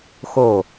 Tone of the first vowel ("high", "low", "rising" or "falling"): falling